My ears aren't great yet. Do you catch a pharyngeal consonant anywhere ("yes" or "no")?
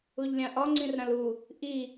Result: no